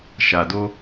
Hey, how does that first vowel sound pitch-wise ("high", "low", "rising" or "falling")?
low